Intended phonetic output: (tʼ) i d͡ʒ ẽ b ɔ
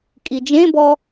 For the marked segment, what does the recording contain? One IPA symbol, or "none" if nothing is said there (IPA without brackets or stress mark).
kʼ